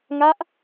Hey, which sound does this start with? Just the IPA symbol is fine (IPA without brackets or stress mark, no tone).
ŋ